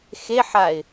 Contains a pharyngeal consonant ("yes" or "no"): yes